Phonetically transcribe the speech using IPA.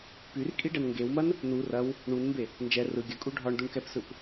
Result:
pyrkʼiɖɛn ŋɡewmɐn | nu rɐw | ɳunmbe | nd͡ʒɛ rɯ ɡʲəkʼu ɖʱɒɳduɳkɛpsɯp

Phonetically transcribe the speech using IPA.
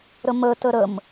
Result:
ɾəmə təɾəm

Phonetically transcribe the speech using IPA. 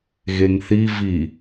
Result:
ɣeŋθi vi

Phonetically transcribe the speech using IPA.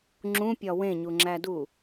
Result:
ŋ͡ǁũpʲɒ wẽɲuŋ͡ǁædu

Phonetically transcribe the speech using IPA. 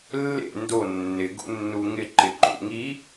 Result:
lːḛ ndo nːɪ ɡṵnːuŋɪ ǃɪǃṵŋi

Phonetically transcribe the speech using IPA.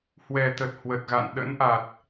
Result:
hwɛ˨˩t̪ə˨˩t̚ hwə˨˩t̚ɣa̰˧˨n ɗə̰˧˥nʔa˨˩t̚

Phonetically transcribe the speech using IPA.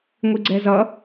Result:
ŋʷiɡ͡ǀɛzʌ

